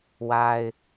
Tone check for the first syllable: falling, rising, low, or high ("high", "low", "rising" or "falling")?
high